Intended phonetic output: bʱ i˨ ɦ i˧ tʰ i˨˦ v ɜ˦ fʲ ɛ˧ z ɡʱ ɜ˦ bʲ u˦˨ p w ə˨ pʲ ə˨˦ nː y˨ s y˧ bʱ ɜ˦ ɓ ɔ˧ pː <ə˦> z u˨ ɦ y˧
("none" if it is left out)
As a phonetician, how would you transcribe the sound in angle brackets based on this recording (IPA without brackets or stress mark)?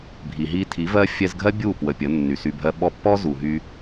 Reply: ɔ˦